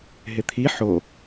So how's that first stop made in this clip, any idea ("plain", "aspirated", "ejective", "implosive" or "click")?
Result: aspirated